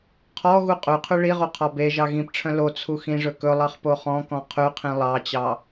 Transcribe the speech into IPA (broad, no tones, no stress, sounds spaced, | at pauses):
qʰ ɔ ɣ u qʼ ʉ qʰ ʉ ɭ i ʁ o qʰ ɔ b e ʒ ɑ ɣ ĩ p ʈ͡ʂʰ œ̃ l o t͡sʰ u x ĩ ʐ ɵ k ɵ lˠ ɑ χ p o χ ɔ̃ k ɔ̃ qʰ ʉ qʰ ĩ lˠ ɑ t͡ɕ ɑ